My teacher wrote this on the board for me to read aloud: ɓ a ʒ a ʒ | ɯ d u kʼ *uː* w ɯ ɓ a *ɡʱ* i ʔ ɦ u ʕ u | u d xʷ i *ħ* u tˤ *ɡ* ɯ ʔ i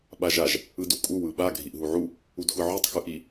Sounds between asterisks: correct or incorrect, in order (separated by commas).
incorrect, correct, incorrect, incorrect